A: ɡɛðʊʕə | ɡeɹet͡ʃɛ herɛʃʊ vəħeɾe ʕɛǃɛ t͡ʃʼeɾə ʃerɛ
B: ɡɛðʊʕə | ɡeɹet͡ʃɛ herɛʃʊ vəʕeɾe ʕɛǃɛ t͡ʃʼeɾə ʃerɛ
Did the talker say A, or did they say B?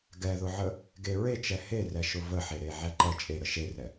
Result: A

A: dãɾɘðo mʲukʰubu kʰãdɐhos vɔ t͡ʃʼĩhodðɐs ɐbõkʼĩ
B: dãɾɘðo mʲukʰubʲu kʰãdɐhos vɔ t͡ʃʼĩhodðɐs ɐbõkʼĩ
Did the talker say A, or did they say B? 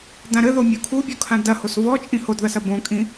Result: B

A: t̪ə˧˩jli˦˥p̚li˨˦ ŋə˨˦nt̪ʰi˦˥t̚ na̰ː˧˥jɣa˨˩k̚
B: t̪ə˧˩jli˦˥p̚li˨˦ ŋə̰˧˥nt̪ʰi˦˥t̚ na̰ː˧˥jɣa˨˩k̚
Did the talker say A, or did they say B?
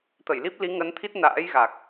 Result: A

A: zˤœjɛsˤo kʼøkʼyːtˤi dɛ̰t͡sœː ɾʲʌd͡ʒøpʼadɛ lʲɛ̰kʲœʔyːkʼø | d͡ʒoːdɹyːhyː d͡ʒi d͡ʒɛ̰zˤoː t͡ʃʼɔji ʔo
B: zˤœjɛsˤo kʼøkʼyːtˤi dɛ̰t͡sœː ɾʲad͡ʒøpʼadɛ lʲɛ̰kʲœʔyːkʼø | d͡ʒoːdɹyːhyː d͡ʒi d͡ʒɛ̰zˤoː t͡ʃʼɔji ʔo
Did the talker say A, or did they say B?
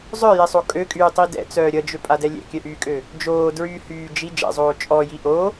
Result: A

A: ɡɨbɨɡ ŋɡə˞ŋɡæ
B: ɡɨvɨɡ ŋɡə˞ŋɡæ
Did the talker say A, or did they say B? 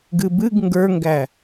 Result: A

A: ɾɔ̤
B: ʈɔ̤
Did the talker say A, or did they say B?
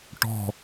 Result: B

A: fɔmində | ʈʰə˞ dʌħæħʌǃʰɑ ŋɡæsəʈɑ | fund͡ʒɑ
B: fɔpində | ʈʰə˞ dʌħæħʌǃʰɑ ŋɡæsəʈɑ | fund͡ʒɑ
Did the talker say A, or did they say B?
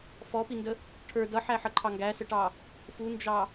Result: B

